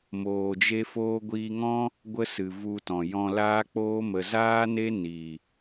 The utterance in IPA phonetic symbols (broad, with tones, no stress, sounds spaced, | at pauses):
m oː˨ d͡ʒ e˧ f oː˧ ɡʷ iː˧ ŋ ɔ̃˦ | ɡʷ ə˦ s ɨ˨ v u˧ t ɔ̃˨ j ɔ̃˧ l aː˦ k͡p oː˦ m ə˨ z aː˦ n e˦ n iː˨